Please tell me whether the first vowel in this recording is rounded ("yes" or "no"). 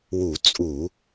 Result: yes